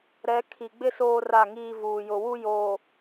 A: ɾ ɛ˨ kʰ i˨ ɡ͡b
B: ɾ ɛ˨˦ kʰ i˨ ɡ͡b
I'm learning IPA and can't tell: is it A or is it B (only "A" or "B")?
B